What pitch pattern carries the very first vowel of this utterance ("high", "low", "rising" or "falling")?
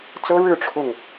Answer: high